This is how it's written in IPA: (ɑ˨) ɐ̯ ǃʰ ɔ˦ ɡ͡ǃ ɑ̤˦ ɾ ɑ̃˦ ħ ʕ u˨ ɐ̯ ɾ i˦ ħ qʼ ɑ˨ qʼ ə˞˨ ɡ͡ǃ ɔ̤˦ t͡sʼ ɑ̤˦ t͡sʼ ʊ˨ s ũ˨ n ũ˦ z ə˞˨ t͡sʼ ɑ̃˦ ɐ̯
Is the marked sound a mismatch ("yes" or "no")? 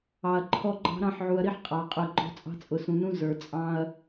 no